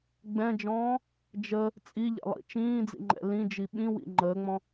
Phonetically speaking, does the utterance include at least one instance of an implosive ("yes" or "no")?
yes